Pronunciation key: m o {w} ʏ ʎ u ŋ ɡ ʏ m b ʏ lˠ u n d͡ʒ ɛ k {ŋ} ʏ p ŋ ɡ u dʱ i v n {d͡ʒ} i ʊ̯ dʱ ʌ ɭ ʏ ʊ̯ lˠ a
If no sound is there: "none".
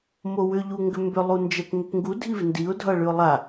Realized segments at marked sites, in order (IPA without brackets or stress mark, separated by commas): w, ŋ, d